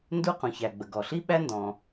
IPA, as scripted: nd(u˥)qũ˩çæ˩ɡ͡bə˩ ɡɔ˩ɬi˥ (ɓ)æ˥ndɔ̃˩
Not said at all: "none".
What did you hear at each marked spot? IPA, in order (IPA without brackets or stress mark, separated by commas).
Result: u˥, ɓ